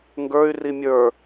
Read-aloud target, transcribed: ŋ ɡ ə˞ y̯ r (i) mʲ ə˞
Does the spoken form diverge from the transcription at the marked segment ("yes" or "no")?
no